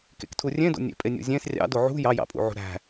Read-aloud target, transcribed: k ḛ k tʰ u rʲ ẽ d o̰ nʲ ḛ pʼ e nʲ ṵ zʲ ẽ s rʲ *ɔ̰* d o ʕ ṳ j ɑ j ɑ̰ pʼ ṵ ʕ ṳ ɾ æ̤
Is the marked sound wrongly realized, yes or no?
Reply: yes